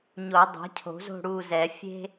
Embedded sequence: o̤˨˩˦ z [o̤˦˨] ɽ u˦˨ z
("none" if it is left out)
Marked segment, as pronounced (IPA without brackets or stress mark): o̤˦˨